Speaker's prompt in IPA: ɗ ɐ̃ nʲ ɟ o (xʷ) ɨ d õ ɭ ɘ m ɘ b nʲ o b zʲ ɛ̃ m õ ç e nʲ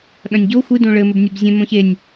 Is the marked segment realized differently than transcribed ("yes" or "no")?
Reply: no